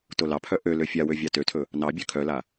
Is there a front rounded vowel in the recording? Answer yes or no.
yes